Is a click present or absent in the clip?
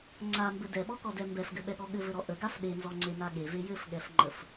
present